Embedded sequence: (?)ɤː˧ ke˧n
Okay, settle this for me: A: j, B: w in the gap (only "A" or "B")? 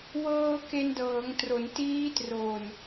B